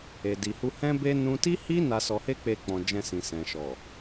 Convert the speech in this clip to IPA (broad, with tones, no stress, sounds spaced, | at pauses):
e˨ d i˨ h u˧ h ɛ̃˦ b e˦ n ũ˦ t i˦ h i˦ n a˧ s ɔ˧ h e˦ k͡p e˧ k͡p ɔ̃˨ d͡ʒ ɛ̃˧ s ĩ˨ s ɛ̃˨ ʃ ɔ˨